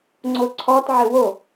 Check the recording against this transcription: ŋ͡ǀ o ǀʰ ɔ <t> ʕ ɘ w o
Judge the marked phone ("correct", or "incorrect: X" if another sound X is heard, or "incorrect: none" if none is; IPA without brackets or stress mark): correct